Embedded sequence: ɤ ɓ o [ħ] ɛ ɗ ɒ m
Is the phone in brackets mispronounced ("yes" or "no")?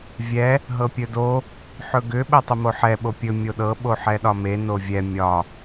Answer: no